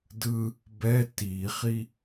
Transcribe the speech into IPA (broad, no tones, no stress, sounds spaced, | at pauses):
d ɯ | b ɛ t i χ i